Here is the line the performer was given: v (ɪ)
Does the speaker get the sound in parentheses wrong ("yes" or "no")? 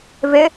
no